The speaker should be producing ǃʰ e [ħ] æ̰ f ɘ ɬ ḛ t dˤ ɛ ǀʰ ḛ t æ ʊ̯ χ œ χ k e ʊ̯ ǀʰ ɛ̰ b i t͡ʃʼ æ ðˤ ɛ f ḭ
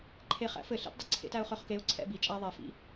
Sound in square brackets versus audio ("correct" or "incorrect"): incorrect